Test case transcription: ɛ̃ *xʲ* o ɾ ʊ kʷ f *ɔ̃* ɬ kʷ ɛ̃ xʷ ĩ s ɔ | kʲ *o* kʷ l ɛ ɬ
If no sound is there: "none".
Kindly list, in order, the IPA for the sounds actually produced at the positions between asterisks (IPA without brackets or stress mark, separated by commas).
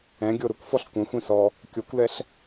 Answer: ɡʲ, ɔ, o